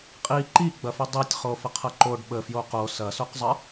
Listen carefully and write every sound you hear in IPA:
qʼ i ǃ i ɡ͡b ɐ f i dˤ i tʲ χ o f ə qʰ ɐ ǃ o ɖ ɓ ə f j o q o s ɐ s o q zˤ ə

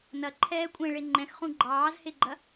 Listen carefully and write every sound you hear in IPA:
n ɐ ǃʰ ɛː kʷʼ ẽ ɭ e ŋ͡ǃ ɛ̃ x χ ũ ɡ͡ǃ ɑː z h e ɡ͡ǃ ɐ

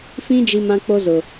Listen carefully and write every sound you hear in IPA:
f ĩ˦ d͡ʒ i˦ m ã˦ k͡p o˦ z ʊ˨

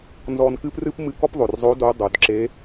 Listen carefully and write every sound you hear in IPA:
n z ɔ˧ n k ɨ˥ p r ɨ˥ p m ɨ˧ k ɔ˥ p ðˤ o˩ r zˤ o˧˥ d o˧˥ dˤ o˩˧ d ǁ e˧˥

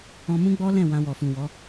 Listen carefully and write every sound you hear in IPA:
ɔ̃˧ m ũ˦ ɡ͡b ɔ˦ l ɛ̃˦˨ w ã˧ w ɔ˨ f ũ˨ w ɔ˨˦

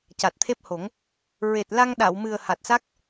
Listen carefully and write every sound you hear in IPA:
c a˨˩ t̚ t̪ʰ e˦˥ p̚ h o˨˩˦ ŋ | ɹ e˨˩ t̚ l a˧ ŋ ɗ a˨˩˨ w m ɨ˨˩ ə̯ h a˨˩ t̚ s a˦˥ k̚

